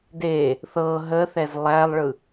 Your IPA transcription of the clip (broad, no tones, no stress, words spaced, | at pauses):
de | θɤ ɦəθɛz lˠælˠɭɯ